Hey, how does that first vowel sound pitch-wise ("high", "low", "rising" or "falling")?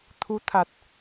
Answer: rising